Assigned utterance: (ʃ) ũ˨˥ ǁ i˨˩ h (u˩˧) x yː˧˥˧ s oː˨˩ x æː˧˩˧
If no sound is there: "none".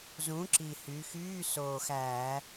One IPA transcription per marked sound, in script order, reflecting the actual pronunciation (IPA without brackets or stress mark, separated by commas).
z, y˩˧